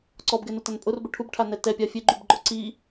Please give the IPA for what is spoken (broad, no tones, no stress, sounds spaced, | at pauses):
ǀ ɔ b ɡ ɛ n ʊ t a n pʼ ʊ r b ʊ ʈʰ u b ʈʰ a n ɛ t ɛ pʲ a fʲ e ɡ͡ǃ u b ɡ͡ǃ ɔ ǀ i